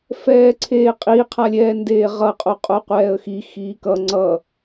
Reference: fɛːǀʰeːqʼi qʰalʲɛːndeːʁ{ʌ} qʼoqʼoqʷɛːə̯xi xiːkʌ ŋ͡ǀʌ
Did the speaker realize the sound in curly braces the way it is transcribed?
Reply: yes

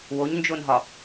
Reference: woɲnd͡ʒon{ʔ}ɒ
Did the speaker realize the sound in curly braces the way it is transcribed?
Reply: no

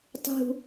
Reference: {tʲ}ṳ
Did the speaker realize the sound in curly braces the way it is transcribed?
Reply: no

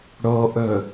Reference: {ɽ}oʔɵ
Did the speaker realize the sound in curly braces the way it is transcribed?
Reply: yes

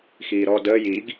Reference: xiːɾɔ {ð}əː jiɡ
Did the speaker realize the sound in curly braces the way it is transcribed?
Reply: no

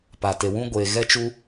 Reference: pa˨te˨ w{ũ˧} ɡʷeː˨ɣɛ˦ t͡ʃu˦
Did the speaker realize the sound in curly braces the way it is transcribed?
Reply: no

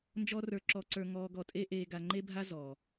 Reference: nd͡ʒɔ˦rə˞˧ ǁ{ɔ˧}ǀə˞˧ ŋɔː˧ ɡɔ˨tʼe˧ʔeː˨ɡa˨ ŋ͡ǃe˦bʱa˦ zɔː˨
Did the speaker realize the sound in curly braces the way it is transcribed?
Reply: yes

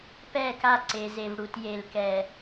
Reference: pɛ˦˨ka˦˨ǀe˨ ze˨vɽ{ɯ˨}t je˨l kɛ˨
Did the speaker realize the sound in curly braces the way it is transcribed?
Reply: no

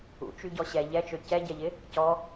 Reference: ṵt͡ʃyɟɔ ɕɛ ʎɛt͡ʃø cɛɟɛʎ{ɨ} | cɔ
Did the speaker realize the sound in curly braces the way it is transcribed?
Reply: no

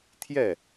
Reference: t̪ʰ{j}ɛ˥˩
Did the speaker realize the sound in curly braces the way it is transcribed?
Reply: yes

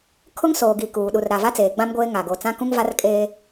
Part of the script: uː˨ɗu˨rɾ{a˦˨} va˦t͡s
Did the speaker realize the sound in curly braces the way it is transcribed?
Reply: no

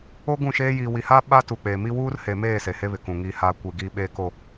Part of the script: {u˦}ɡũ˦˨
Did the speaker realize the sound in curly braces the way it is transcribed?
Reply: no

